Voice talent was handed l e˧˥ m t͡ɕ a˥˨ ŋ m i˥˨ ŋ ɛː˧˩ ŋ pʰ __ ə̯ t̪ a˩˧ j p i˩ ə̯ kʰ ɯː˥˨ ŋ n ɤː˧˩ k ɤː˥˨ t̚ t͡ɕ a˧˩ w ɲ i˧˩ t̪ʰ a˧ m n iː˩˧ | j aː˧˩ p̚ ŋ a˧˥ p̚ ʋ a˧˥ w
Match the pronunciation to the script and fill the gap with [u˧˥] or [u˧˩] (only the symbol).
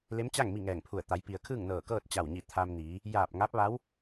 u˧˩